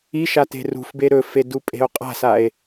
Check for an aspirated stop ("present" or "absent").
absent